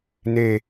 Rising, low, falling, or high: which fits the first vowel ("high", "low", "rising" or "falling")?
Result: falling